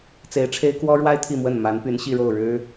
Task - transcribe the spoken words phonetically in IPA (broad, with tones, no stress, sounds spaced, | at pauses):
t͡s e˧˥ ɪ̯ ʈ͡ʂʰ e˥ ɪ̯ k w ɔ˥ ɻ w a˥ ɪ̯ t̪ʰ i˥˧ m w ə˥˩ n m a˧˥ n p y˧˥ n ɕ i˥˧ ɻ o˥˩ ʊ̯ ɻ ɻ̩˥